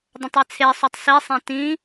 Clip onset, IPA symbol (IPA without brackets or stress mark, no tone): dˤ